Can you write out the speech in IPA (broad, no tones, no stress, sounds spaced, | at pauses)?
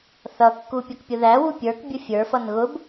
θ ʌ kː u pʲ ʌ k pʲ ʊ ð æ w u pʲ ə˞ k bʲ ʊ fʲ ə˞ f ʌ n ɣ ʊ b